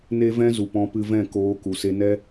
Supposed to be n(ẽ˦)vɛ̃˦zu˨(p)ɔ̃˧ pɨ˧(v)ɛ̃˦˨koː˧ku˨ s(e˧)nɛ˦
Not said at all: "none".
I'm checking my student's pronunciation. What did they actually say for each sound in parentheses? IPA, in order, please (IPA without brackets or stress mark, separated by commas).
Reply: e˦, p, v, e˧